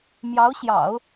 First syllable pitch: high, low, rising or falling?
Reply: rising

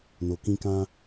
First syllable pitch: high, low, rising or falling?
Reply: low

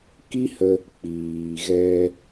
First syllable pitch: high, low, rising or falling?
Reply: high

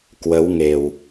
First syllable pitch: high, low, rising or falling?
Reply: rising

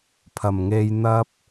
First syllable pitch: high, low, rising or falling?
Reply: low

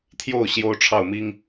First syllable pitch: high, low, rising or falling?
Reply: falling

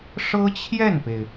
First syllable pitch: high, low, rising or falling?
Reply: high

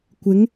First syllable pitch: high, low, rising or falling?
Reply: rising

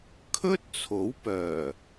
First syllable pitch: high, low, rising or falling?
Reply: high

